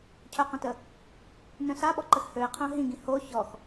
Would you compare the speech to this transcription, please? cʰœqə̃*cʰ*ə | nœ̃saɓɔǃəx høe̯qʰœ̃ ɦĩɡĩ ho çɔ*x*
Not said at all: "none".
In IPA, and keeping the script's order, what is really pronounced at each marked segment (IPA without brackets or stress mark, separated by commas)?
t, x